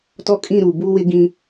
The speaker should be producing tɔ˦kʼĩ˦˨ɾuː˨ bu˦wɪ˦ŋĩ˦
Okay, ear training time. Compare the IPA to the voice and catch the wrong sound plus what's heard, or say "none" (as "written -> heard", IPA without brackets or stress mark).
ŋ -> ɡ